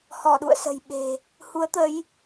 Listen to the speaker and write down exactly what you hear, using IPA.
hɔ˧˩ɗṵ˧˨ə̯sə̤˨˩j ɓe̤˨˩ | hu˨˦ə̯t̪ə˨˦j

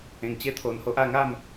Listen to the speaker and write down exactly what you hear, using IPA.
ẽ˧ŋt͡ɕe˦t̪ʰo˧nho˦ʔ a˥˧ŋa˥˧m

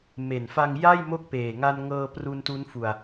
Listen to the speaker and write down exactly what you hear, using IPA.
me˨˩nfa˧ŋ ja˥˩jmo˦˥k̚ peː˨˩ŋa˧nŋɤː˧pru˧n tu˦˥nfu˧a̯

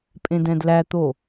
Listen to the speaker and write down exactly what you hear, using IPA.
pʼẽdɛ̃dlæt̪o

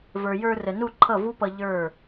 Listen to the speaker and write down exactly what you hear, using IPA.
və˞˨jə˞˧rə˨ nu˦˨ǃʰʌ˦˨vu˦pʌ˧ ʎə˞˦˨

